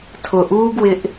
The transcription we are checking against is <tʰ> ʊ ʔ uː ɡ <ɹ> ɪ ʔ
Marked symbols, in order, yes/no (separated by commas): yes, no